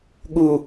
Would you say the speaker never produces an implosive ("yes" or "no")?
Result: no